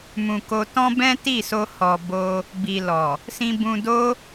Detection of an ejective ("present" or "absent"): absent